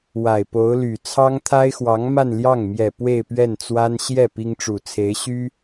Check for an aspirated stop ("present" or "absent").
present